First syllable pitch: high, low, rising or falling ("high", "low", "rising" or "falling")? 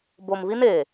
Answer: low